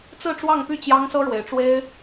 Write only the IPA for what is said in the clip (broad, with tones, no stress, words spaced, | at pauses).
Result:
t͡sɹ̩˥˧ʈ͡ʂwɑ˥˧ŋpy˥˩ t͡ɕjɑ˥ŋsɤ˥ ɻwe˧˥ɪ̯ʈ͡ʂwe˥ɪ̯